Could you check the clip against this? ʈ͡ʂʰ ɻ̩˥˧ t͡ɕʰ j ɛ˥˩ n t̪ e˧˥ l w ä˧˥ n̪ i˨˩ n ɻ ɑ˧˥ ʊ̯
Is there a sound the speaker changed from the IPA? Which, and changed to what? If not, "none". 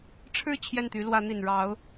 e˧˥ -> y˧˥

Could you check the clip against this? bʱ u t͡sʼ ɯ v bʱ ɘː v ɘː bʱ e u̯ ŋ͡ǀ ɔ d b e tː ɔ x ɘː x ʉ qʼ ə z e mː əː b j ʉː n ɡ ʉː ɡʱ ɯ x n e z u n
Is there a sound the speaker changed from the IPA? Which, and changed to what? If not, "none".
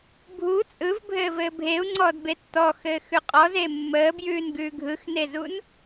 ə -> ɔ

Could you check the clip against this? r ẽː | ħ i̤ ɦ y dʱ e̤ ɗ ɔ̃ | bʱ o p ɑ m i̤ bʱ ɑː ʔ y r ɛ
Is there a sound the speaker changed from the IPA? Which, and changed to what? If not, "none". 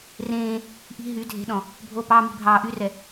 ħ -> ʔ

